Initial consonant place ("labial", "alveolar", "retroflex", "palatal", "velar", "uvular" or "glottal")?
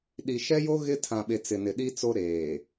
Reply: alveolar